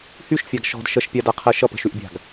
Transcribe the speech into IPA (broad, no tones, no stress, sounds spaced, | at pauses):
h y ʃ fʲ a ɡ ʃ ɔ̤ d ʃ ə ʃ pʲ a d a qʰ ɜ ʃ ʌ p ə̤ ʃ y ʔ bʲ a̤ ɡ